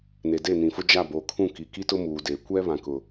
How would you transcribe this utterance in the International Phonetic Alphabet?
ne˨de˦˨nĩ˨fʊ˦ d͡ʒa˦˨boː˨kʰũ˦˨ ki˨ki˦tʊ˦ muː˨deː˨ kʷɛ˦ βã˨kʊ˨

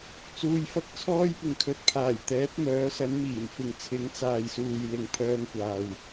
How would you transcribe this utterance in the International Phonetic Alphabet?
t͡suː˧jfɐ˥k̚t͡sʰɔː˥j pɪ˨ŋkʰɵ˨˥t̚pʰaː˨˩j t̪ɛː˨˥p̚mœː˨˥sɐ˨˥n miː˨˩mfɪ˨ŋ t͡sʰɪ˨˥ŋt͡saː˨jsuː˨j lɪ˨ŋpʰœː˧ŋkʷaː˨w

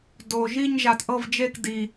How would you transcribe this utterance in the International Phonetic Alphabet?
do˨ ʒi˥˧ɲʒa˨t ʔɤ˥˧vd͡ʒe˥˧k di˨

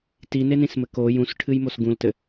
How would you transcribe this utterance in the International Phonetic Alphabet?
tinenĩsmɘ ko jũsʈʰɨjmos ɡũltɘ

